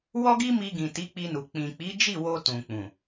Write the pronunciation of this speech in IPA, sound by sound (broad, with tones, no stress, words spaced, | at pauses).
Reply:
wɔ˦ɡi˦mi˧ɡĩ˨ ti˨˦k͡pi˧nu˨ k͡pĩ˨k͡pi˨˦d͡ʒi˦˨wo˧ tũ˨k͡pũ˨